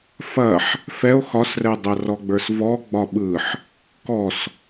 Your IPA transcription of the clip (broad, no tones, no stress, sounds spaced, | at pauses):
f ɐ ħ | f ɛ o̯ x ɒ s r ɛ dˤ ɐ r ɔ ɡ͡b ə˞ s v ɔ ɡ͡b ɒ ɓ ɯ ħ | k ɔ s